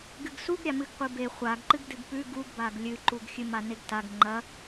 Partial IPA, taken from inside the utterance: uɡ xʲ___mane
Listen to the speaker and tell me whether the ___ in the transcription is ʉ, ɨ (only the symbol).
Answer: ɨ